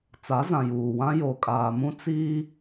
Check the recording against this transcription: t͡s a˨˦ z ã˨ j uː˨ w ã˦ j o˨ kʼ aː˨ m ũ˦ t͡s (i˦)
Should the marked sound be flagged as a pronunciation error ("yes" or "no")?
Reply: yes